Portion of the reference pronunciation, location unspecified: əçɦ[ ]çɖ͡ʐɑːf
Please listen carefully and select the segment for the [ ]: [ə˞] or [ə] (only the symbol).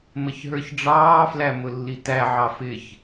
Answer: ə˞